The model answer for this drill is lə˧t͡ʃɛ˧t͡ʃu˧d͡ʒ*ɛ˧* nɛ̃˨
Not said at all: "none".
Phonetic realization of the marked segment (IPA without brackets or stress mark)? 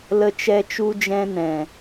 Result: ɛ̃˧